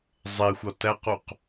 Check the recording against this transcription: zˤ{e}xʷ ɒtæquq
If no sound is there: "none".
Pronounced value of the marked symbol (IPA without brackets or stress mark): e